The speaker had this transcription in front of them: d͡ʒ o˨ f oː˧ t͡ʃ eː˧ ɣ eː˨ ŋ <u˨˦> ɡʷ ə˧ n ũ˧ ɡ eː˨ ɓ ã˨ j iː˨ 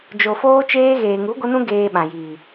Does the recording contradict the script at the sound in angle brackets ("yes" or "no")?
no